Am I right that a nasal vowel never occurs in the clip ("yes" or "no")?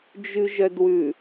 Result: yes